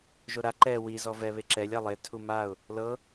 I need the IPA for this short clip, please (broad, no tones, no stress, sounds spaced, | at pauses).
ʒ o ɾ a ǃ ɛ w i z ɔ v ɛ β e ǁ ɛ lʲ a lˠ e tʰ u m a ʊ̯ | l ɤ